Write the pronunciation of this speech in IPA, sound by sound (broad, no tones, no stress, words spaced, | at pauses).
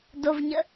dovɲə